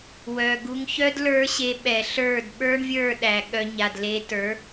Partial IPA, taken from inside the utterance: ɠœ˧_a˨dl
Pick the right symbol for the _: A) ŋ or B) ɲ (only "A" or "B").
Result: B